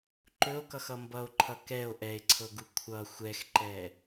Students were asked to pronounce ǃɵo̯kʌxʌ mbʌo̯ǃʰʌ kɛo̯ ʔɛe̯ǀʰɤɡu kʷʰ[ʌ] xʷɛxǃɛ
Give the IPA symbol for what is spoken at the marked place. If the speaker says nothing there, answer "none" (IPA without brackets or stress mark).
ʌ